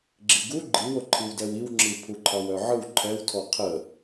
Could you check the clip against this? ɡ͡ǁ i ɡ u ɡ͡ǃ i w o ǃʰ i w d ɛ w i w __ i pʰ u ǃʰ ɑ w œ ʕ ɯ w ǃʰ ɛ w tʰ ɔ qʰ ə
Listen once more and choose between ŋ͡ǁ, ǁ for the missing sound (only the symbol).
ŋ͡ǁ